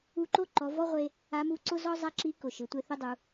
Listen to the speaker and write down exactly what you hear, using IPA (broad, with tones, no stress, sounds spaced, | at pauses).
u˧˥ ǃ o˥ ǃ ɔ˩˧ v ɔ˥ ʁʷ e˧ | a˧˥ m u˧˥ ǀ ʊ˥ z ɔ˥ zˤ a˥ ǁ i˧˥ k ʊ˩ ʃ ɪ˩˧ tʷ e˧ θ ʊ˥ dˤ u˩˧